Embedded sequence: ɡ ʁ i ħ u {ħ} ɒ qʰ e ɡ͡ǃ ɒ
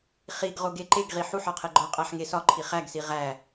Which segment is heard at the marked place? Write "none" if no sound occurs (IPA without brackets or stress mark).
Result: ħ